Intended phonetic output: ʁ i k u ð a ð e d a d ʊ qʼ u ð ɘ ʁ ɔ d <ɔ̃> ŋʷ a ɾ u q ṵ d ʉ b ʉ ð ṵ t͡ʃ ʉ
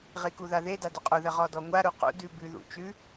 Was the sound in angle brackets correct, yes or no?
no